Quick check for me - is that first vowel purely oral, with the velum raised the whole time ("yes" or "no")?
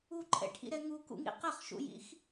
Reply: yes